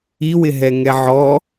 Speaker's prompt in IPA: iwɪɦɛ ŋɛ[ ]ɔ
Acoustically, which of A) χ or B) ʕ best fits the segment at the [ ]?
B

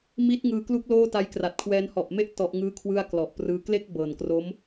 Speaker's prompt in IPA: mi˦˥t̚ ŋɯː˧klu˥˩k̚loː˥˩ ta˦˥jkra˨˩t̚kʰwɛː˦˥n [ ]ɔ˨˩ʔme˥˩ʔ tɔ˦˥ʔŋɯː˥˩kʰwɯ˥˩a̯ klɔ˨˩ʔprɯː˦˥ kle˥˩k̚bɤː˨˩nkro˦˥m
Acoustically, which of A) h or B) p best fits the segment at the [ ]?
A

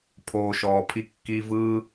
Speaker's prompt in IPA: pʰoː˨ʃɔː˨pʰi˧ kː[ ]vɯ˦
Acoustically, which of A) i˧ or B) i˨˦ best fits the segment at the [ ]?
A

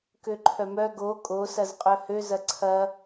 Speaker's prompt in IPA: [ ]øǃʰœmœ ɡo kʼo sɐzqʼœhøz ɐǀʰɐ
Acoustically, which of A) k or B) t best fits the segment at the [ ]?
A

